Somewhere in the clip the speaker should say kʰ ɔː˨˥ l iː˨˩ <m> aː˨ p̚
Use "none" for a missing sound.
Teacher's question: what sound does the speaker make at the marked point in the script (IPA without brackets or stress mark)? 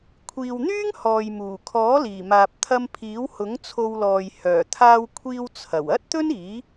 m